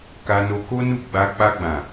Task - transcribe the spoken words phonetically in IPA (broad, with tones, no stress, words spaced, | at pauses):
ka˧no˧ko˦ nu˦˨ɡ͡ba˧ k͡pa˧ɡ͡bã˨